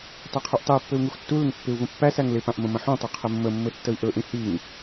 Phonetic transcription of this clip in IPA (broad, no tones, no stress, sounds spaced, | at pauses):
tˤ i qʰ u ʔ tˤ ɪ u̯ pː ɘ u̯ ŋ u x tː u l ɪ ŋ pː ɪ u̯ v ə̃ pː æ s æ ŋ l ɪ p ã ʔ m ə̃ m ə̃ ħ ũ tˤ ɘ qʰ ɘ mː ə mː ɘ tː ə i̯ ʔ ɵ ʔ ĩ h i ŋ